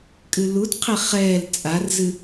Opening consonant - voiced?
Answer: no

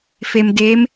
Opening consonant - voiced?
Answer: no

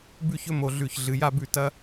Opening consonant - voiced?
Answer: yes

